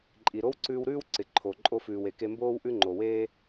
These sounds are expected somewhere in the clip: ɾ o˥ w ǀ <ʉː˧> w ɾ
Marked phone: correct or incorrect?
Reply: correct